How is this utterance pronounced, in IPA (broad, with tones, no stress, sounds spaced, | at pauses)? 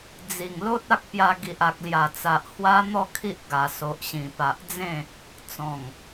d͡z i˨˩ ŋ l o˦ t̚ a˦ k̚ p j a˧ ɡ i˨ ʔ a˨ k̚ l j a˨˩ t͡s a˨ ʔ h w a˦ n̪ ɔ˥˧ kʰ i˦ ʔ ɡ a˨˩ s o˨ ʔ ɕ ĩ˨˩ p a˨ ʔ d͡z ẽ˥˧ | t͡s ɔ̃˨˩ ŋ